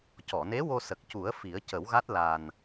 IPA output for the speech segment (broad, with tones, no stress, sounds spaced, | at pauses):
c ɔ˨˩˨ n e˧˥ w o˧ s ə˨˩ k̚ c u˨˩˦ ə̯ f i˨˩˦ ə̯ c ə˨˩˦ w ɣ a˦˥ t̚ l a˨˩ n